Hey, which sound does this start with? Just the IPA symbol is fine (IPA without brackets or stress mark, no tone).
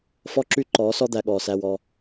f